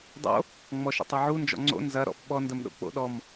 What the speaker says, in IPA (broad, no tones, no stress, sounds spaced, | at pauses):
dˤ o̰ | ŋ͡m ɔ ʃ ə̰ tˤ ɐ ʕ u n d͡ʒ ɔ̰ ŋ͡ǀ o̰ n z ɐ ɾ ɔ̰ f ɓ ɔ n d ə m ɗ o̰ k͡p o̰ ɗ ɔ m